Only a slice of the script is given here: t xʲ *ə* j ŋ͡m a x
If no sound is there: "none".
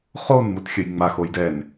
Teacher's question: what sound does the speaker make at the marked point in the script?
ə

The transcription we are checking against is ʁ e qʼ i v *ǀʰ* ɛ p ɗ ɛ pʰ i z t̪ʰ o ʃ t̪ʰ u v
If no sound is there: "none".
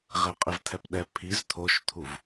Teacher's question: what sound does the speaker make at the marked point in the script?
t̪ʰ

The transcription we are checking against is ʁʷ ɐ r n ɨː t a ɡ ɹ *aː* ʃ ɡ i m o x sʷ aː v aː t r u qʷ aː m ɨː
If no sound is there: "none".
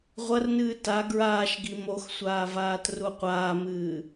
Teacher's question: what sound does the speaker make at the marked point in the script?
aː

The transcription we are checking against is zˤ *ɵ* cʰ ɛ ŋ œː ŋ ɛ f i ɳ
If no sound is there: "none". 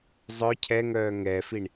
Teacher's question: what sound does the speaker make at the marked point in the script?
œ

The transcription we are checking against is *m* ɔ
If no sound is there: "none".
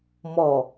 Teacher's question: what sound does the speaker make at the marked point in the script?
m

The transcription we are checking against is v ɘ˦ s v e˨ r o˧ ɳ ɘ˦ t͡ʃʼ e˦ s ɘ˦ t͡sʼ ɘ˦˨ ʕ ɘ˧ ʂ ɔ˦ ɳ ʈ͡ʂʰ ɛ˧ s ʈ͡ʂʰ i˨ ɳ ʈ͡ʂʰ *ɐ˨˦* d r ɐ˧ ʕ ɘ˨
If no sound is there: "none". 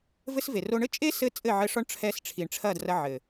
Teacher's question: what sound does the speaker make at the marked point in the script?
ɐ˦˨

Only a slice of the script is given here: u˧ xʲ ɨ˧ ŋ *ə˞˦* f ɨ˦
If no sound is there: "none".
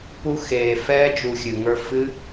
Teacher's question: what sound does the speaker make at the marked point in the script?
ə˞˦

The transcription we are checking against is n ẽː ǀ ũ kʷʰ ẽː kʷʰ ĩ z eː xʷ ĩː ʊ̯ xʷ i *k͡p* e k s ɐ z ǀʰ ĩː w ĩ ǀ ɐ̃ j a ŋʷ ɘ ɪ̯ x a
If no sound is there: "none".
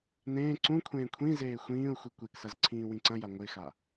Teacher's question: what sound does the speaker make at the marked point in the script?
kʷ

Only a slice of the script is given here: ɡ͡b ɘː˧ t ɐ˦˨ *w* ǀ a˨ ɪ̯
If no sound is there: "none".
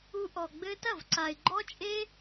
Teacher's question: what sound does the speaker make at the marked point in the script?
v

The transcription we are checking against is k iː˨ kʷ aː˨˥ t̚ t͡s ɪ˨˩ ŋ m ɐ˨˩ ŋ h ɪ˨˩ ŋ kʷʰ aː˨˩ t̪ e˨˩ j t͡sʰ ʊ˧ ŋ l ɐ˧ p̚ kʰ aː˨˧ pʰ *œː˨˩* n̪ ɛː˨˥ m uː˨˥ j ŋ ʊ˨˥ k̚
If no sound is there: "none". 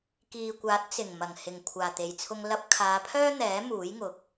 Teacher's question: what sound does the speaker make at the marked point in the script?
œː˥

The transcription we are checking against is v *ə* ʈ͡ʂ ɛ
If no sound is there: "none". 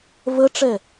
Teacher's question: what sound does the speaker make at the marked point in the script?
ə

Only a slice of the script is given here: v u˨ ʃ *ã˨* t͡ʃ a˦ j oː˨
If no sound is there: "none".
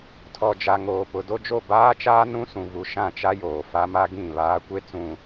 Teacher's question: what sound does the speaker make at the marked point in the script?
ã˦˨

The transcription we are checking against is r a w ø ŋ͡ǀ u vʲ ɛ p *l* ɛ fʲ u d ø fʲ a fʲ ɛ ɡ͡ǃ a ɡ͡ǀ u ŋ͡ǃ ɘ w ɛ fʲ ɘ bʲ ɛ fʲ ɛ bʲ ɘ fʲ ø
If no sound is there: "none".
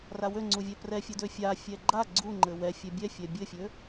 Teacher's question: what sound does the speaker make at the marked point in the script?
r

